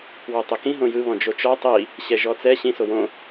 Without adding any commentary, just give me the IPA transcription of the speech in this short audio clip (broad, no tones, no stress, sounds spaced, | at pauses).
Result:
w ɔ tˤ e k ĩ ɦ õ j ɯ β ɔ̃ d͡ʒ o t͡ʃ ɔ tˤ i | ɕ ɛ ʒ ɔ t͡s ɛ ɕ ĩ s o w õ